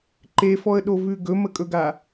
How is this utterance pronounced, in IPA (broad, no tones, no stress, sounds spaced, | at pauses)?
ǃ e f ɔ ə̯ ɗ o v ʉ ɡ ɵ m ə kʼ ɵ ɡ a